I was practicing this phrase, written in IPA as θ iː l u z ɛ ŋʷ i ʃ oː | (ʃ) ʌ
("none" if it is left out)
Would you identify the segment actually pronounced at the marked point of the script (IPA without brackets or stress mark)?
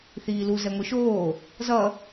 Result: z